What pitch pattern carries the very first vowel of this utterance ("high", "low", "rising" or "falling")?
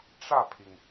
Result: falling